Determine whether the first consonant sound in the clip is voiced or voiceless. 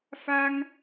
voiceless